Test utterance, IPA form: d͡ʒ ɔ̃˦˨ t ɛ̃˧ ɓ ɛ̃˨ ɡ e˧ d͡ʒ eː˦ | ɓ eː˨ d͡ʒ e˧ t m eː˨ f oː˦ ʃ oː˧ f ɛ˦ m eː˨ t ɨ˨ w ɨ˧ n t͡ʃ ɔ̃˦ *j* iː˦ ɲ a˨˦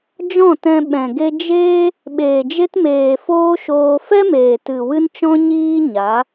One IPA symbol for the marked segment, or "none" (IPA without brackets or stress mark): ɲ